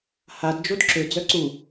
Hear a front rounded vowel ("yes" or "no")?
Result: yes